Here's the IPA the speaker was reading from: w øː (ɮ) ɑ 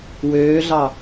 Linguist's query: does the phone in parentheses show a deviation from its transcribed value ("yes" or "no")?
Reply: no